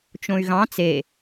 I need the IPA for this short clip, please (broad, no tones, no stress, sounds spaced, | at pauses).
t͡ʃ õ y̯ ɣ ɑ̃ t͡s e